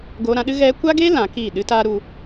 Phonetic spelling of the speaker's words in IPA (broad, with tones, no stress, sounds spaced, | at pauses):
ɡ oː˧ ɾ ã˧ ɗ ɨ˦ ɣ ɛ˧ kʷ a˦ ɡ e˦ l ã˨˦ k iː˦˨ ɗ ɨ˦ t aː˦ ɾ u˧